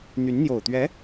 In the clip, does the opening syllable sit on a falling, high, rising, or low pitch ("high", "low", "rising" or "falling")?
rising